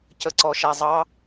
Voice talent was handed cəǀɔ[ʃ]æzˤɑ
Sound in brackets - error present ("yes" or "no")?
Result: no